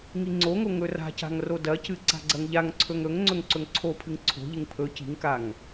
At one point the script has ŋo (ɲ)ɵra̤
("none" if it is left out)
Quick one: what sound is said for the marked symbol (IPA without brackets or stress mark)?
ŋ